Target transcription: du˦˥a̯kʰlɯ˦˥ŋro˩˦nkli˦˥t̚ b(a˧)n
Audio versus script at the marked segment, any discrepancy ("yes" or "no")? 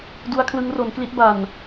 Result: yes